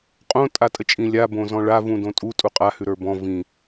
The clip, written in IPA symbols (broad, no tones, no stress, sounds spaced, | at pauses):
qʼ õ tʼ a tʼ ə t͡ʃʼ ĩ lʲ a b õ z ɔ̃ ɭ a v ũ d õ tʼ u tʼ u qʼ a h ʉ ɾ ə˞ b ɔ̃ v ĩ